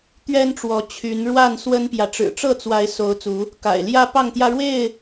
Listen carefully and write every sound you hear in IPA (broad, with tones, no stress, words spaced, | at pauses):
t̪ɥɛ˦nʈ͡ʂwɔ˨˦ t͡ɕʰy˨˦n ɻwa˥˨n swə˦npjä˨ ʈ͡ʂɻ̩˨˩ʈ͡ʂɤ˥˨t͡swa˨˦ɪ̯ so˨˦ʊ̯ t͡su˨˦ | ka̰˨˩ɪ̯ljä˦ pɑ˥˨ŋt̪jä˦ɻwe˥˨ɪ̯